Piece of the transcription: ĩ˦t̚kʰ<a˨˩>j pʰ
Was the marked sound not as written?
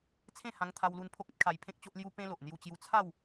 yes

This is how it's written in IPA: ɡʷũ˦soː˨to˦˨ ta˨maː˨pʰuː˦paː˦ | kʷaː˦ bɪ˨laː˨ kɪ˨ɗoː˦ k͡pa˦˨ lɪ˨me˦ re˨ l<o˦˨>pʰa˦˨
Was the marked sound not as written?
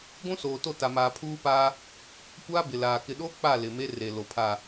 yes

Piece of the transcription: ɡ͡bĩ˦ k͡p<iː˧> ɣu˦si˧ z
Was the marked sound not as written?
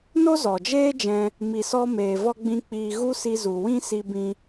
no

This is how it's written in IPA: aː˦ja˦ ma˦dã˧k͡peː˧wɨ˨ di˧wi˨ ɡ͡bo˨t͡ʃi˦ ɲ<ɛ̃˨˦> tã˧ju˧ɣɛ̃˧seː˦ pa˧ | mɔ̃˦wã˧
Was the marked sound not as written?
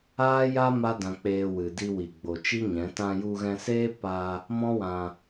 no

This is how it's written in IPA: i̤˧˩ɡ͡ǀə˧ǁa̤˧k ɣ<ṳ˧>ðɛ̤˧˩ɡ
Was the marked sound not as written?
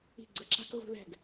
no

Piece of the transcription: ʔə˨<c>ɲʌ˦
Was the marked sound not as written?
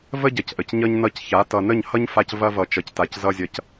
no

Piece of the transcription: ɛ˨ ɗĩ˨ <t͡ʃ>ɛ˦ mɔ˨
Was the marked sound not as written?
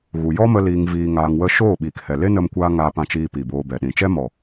no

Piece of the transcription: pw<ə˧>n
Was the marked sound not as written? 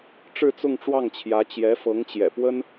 yes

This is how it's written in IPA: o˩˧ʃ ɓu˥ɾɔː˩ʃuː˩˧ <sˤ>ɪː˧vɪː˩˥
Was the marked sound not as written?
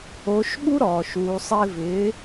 no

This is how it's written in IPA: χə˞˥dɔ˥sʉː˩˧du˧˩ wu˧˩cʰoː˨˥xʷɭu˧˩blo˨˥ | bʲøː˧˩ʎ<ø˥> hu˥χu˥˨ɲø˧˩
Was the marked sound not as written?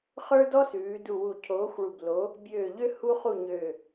no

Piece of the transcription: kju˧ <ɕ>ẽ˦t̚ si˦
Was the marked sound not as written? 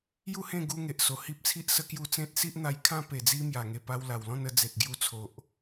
yes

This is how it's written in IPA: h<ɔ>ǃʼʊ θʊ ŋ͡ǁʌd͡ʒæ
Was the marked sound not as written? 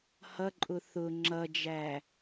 yes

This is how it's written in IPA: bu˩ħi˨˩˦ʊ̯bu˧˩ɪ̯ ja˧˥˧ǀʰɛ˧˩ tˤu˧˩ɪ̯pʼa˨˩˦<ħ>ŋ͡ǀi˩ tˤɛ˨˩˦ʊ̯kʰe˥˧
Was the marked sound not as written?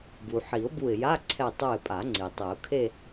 yes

